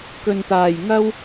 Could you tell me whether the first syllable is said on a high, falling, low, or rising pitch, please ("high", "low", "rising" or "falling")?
low